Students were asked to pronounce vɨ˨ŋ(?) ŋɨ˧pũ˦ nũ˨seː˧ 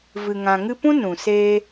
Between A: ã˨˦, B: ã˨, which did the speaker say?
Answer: B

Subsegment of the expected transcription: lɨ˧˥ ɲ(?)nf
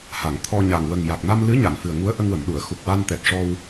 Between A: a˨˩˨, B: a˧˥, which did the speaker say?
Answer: A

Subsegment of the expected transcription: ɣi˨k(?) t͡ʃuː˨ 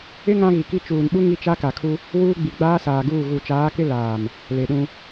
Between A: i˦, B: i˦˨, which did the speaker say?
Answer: A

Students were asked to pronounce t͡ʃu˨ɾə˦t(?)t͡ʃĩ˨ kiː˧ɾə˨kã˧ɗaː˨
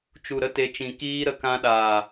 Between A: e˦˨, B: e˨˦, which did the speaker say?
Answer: B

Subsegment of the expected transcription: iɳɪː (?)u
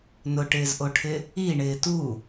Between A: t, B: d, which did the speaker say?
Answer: A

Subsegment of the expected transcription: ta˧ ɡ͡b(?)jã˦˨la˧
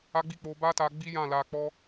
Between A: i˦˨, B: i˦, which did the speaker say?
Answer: B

